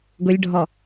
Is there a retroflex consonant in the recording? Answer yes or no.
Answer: yes